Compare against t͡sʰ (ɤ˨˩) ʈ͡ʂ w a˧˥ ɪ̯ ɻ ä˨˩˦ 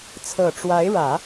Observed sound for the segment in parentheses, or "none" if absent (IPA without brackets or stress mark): ɤ˨˩